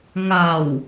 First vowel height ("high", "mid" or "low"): low